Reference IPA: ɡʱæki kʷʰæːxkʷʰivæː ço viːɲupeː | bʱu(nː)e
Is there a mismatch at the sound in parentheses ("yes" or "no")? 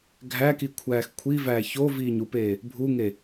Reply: yes